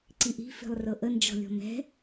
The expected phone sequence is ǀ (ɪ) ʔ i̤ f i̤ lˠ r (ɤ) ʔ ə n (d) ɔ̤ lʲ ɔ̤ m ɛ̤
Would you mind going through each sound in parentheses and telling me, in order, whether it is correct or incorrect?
incorrect: i, correct, incorrect: d͡ʒ

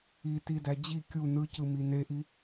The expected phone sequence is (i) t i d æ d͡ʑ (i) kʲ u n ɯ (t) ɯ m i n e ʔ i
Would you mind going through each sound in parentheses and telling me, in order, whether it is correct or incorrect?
correct, correct, incorrect: c

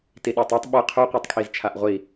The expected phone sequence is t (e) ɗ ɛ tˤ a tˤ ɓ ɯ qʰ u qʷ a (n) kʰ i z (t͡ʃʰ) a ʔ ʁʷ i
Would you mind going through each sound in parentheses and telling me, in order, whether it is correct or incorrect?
incorrect: i, incorrect: tˤ, correct

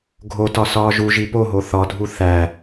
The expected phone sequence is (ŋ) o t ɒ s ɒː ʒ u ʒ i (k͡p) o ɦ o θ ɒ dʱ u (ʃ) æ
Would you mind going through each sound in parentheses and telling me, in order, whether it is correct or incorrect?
incorrect: ɡʱ, incorrect: p, incorrect: θ

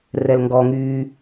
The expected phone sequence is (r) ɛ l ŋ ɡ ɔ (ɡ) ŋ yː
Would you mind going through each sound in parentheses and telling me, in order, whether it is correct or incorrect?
correct, incorrect: none

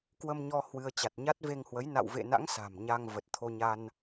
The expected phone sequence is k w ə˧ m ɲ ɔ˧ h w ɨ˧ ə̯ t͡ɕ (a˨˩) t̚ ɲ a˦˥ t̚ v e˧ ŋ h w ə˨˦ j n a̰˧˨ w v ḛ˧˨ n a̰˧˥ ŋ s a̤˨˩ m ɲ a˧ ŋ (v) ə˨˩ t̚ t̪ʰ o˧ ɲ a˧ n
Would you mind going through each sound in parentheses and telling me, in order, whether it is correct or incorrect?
correct, correct

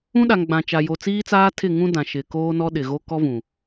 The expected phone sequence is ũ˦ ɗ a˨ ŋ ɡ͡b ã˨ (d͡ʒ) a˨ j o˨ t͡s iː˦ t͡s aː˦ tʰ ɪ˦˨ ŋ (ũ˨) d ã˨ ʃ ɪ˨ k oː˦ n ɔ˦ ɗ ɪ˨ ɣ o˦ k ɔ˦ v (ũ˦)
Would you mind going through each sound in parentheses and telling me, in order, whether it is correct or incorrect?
incorrect: t͡ʃ, incorrect: ũ˦, incorrect: ũ˨

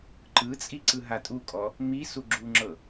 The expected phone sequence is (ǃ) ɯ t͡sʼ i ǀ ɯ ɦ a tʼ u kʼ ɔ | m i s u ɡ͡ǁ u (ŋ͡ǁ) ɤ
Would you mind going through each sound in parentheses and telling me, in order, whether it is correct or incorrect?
correct, correct

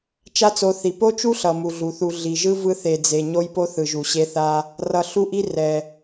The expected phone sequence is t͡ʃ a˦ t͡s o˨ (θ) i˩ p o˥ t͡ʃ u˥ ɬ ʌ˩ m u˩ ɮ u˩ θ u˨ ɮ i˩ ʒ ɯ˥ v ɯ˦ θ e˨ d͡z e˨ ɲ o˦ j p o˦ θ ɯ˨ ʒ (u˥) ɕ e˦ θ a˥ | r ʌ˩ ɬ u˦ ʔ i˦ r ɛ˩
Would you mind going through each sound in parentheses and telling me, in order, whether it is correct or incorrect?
correct, incorrect: u˨

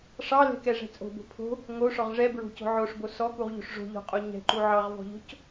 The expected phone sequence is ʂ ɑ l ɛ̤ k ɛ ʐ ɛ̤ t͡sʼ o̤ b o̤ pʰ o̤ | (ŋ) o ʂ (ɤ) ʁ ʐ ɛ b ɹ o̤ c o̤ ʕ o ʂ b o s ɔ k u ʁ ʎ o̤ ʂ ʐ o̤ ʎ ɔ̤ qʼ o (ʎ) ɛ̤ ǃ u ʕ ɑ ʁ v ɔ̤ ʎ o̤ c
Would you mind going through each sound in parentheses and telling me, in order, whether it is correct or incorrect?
correct, incorrect: ɔ, incorrect: ɲ

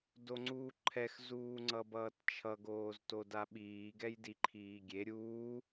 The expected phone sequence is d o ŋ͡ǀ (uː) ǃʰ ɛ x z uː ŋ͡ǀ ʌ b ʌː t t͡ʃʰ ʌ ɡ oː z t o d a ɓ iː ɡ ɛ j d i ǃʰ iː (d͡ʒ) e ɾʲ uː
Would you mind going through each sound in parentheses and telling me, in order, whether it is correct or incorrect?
correct, incorrect: ɡʲ

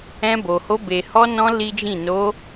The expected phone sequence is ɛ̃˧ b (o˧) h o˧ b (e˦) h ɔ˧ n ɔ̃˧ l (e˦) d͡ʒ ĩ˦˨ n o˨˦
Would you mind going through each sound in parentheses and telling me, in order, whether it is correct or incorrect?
incorrect: o˨, incorrect: e˨, incorrect: i˦

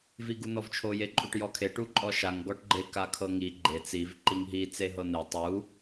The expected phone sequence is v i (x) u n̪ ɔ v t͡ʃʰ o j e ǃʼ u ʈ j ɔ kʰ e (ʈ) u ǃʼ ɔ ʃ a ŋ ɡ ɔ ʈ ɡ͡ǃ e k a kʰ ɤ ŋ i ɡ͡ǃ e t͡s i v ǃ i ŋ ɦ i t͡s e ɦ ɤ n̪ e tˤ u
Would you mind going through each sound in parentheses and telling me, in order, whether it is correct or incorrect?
incorrect: ɡ, correct

